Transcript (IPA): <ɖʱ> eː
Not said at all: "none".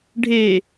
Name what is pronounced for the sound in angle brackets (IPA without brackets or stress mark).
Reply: ɖʱ